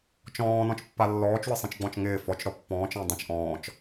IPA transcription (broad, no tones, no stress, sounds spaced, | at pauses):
t͡ʃ ɔ̃ː n ɔ̃ t͡ʃ pː a lː ɔː t͡ʃ w ɪ sˤ ĩ t͡ʃ ɡ͡b ɔ̃ t͡ʃ ŋ ɪː f ɔ t͡ʃ ɾ ɔ pː ɔ̃ː t͡ʃ ə̃ː dˤ ə̃ t͡ʃ ʔ ɔ̃ː t͡ʃ